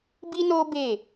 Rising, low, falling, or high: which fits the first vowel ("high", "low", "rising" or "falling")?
high